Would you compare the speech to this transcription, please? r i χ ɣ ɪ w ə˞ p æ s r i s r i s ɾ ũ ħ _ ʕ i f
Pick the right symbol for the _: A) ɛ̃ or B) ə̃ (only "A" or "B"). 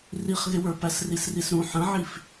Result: B